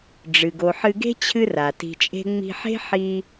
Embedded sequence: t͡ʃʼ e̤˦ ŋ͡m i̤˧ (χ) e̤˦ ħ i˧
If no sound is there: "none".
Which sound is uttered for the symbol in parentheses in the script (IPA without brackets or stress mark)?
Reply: ħ